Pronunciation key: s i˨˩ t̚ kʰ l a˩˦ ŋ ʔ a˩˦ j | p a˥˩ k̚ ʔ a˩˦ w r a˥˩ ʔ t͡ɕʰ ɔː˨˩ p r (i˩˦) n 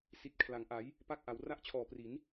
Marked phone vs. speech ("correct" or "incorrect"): correct